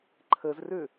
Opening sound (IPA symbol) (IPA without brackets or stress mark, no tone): ǃʰ